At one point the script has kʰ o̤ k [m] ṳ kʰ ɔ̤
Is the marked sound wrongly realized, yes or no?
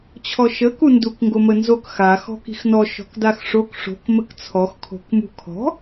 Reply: no